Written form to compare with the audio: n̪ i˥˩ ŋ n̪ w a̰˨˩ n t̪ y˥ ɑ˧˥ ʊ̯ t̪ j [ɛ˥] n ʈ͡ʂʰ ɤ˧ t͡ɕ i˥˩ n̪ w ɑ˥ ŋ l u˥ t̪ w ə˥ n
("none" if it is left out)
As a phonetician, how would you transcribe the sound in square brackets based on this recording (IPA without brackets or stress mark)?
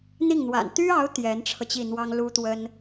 ɛ˧˥